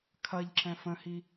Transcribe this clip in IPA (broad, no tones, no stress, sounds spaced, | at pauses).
kʰ ɐ ʎ ǁ ɛ̃ f ə̃ h i